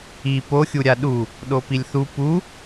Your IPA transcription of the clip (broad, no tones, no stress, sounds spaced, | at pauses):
i p o xʲ u ɾʲ a ɗ u | ɗ o p i lʲ θ u p u